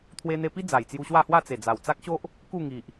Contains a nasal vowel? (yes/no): no